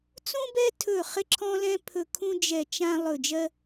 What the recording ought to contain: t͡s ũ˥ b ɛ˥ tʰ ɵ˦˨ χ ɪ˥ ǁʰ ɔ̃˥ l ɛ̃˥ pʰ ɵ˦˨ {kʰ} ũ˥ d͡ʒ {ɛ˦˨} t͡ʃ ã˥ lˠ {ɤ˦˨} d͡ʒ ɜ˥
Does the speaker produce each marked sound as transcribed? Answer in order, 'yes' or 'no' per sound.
yes, yes, no

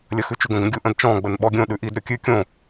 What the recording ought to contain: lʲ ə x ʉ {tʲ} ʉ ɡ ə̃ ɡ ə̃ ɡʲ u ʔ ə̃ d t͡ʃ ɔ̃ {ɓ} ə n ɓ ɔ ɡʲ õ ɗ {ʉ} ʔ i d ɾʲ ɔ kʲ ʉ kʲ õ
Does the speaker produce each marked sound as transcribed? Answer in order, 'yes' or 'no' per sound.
no, no, yes

